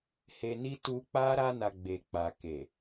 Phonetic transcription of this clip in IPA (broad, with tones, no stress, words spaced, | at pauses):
he˧ni˦ tu˧k͡pa˦ ɾa˧na˨ ɡ͡be˨k͡pa˨ke˨